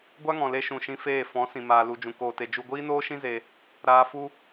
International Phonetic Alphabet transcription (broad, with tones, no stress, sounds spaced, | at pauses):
ɡʷ a˦ ŋ ɔ̃˨ l e˧ ʃ ũ˨ ʃ ĩ˧ f eː˦˨ f ɔ̃˨˦ s ĩ˨ m aː˨ l u˨ d͡ʒ ũ˨ k oː˨ t e˨ d͡ʒ u˧ ɡʷ iː˦ n oː˦ ʃ ĩ˦ z e˧ | ɾ aː˧ f u˦